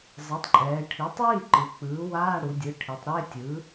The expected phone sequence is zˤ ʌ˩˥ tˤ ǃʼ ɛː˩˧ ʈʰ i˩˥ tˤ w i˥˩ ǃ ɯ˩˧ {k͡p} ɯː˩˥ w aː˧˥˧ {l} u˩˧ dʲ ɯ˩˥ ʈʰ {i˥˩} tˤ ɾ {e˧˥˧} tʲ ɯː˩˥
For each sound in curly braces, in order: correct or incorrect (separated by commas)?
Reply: correct, incorrect, incorrect, correct